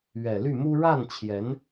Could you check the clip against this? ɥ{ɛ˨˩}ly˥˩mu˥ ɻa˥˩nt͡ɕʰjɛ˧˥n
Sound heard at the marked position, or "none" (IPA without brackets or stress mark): ɛ˨˩